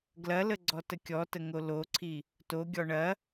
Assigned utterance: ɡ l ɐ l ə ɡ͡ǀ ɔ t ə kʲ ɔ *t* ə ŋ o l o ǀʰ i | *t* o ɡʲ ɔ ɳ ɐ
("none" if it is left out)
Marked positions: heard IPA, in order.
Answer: t, t

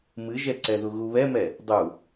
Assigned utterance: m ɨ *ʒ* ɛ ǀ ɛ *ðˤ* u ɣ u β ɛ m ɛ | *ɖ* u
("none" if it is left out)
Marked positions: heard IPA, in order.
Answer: ʒ, ð, dˤ

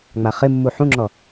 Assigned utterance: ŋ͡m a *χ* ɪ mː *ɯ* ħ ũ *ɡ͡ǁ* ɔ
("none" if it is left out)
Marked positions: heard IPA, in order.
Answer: χ, u, ŋ͡ǁ

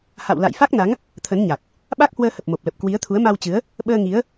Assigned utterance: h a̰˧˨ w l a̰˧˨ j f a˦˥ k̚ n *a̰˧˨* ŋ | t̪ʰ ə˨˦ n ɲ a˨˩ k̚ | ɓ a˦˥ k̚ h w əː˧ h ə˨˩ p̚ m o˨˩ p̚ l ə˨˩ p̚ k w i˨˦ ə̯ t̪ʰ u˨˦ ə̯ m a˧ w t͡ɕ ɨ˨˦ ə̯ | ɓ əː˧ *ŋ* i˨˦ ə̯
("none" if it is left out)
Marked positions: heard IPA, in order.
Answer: a˨˦, ŋ

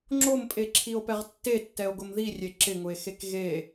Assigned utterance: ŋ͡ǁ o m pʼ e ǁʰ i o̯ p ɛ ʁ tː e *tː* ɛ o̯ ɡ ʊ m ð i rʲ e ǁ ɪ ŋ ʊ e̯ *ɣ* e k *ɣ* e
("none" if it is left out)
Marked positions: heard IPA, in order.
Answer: tː, x, ɣ

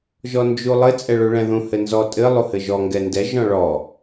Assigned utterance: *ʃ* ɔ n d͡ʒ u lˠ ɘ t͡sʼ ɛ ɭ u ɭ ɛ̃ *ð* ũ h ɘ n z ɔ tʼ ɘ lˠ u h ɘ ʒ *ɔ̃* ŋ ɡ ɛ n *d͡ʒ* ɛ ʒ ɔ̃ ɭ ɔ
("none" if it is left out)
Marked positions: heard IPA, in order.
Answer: ʒ, ð, ɔ, d

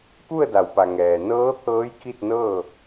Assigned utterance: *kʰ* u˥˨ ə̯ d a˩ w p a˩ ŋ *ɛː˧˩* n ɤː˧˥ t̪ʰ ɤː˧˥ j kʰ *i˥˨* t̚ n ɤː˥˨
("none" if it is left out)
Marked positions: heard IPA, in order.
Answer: k, ɛː˩, i˥˨

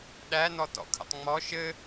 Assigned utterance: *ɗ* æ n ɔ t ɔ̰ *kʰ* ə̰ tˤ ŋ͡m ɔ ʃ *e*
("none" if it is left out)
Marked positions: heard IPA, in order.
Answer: ɗ, kʰ, ɘ

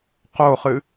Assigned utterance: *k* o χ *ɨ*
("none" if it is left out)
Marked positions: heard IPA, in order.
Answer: q, ɨ

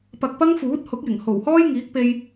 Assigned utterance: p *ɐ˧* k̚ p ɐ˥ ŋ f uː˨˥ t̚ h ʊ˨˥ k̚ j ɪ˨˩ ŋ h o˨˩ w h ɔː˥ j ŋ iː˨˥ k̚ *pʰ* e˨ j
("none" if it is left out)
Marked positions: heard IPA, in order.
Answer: ɐ˧, p

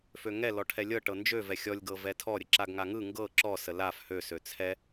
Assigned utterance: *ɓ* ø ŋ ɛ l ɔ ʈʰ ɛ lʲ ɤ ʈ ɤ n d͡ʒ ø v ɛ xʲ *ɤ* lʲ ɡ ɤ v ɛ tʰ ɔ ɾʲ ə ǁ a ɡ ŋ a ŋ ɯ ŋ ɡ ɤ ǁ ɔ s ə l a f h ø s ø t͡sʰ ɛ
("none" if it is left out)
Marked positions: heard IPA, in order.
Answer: f, ɔ

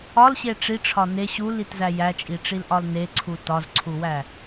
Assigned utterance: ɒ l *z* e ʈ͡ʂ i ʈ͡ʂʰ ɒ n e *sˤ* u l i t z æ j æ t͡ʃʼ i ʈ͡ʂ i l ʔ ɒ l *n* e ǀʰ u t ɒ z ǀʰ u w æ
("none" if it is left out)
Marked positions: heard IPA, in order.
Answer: ɕ, ɕ, n

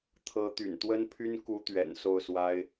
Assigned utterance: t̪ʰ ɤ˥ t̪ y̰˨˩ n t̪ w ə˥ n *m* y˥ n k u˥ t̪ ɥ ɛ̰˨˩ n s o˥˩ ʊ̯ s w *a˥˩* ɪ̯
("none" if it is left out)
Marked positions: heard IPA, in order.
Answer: pʰ, a˥

